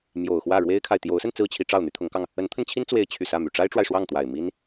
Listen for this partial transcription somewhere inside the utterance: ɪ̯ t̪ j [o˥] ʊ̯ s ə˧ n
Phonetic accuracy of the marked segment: incorrect: o˧˥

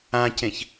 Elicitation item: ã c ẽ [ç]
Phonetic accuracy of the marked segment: correct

